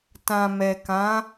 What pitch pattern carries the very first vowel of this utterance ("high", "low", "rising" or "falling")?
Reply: low